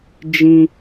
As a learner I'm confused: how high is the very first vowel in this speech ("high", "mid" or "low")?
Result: high